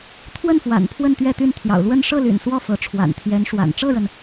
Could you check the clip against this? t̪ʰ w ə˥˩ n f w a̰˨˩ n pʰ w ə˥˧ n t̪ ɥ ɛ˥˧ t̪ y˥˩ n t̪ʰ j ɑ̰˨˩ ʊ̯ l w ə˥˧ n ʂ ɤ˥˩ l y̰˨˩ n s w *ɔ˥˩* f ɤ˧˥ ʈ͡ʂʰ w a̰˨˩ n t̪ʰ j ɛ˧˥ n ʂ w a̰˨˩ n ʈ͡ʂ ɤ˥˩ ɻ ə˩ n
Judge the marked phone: correct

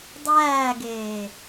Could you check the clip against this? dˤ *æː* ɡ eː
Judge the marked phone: correct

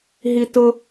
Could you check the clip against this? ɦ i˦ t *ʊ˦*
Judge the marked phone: correct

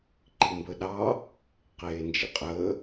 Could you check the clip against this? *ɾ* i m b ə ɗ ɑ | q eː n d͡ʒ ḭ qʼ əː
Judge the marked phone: incorrect: ǃ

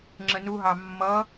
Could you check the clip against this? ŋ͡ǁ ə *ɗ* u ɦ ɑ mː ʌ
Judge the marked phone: incorrect: n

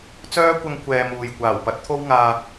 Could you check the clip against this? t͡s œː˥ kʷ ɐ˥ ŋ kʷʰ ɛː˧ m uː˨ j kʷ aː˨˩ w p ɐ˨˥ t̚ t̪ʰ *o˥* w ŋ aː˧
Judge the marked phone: correct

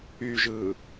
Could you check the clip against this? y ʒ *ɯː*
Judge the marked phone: correct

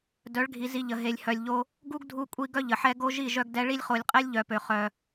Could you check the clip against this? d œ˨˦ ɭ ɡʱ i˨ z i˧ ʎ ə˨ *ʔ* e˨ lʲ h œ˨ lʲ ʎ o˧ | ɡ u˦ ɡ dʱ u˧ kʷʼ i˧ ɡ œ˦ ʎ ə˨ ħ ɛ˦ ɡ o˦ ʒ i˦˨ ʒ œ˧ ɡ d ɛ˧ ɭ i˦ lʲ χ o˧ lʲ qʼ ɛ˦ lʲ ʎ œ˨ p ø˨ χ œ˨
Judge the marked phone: incorrect: ɦ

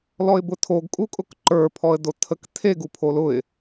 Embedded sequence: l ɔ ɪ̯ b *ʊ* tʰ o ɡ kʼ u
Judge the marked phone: correct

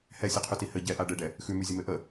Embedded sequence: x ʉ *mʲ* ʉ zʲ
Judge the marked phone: incorrect: m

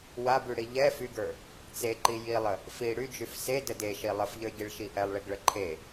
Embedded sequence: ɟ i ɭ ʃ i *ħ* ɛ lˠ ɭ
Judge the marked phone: incorrect: ʔ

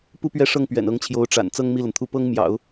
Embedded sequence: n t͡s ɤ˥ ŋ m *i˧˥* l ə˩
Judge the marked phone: incorrect: i˥˩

